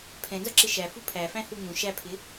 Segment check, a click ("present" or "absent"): present